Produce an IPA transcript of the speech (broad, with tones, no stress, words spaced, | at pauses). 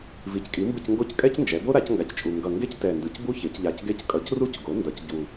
vi˩˥ckʼi˩˥mbɯ˦˨c ŋɡo˦˨ckʼɛ˦cnd͡ʒɛ˩˧bo˦ ɾa˩˥cŋɡa˨˩ct͡ʃʼu˨˩ ŋɡʌ˨˩ ŋɡe˦ctɛ˨˩ndɯ˩˧c bu˦çe˩˧cʎa˨˩c ɡe˦˨ckʼʌ˩˥cru˦c ɡo˩˥ ndʌ˩˥c ɟu˨˩